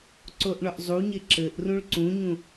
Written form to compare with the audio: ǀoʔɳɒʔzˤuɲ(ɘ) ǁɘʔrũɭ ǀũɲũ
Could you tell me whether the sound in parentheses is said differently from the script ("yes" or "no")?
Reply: yes